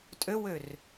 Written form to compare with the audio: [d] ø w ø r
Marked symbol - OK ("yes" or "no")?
no